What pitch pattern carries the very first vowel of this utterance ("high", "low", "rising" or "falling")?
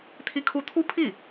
high